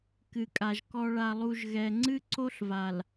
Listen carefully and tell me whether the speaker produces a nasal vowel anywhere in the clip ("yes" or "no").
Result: no